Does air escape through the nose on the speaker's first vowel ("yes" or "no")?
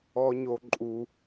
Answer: no